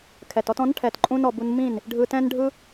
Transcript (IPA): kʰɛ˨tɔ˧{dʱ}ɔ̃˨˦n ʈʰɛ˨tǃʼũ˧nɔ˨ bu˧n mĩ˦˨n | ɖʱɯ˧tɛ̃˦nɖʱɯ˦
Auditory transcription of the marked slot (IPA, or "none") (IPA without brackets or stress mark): t